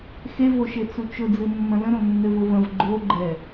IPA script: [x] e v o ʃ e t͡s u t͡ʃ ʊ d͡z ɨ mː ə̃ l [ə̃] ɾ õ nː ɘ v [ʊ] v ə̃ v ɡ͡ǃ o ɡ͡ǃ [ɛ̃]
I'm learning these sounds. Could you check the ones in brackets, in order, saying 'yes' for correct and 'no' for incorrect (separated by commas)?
yes, yes, yes, no